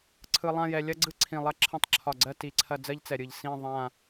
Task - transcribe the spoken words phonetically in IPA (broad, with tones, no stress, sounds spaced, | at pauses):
ǀʰ ɯ˧ lˠ ã˥˧ j ɛ˧ lʲ ɐ˥ ɡ͡ǀ ɯ˥ ǀʰ ĩ˧˩ lˠ ɐ˥ ǁʰ ɐ̃˥˧ tˤ ǁʰ ɒ˧˩ ɡ͡ǀ ɜ˥˧ t i˧ ǀʰ ɐ˥˧ d͡z ɜ˥ ʎ t͡s ɛ˧ ɾʲ ɯ˧˩ ʎ s ĩ˥˧ ðˤ ã˥˧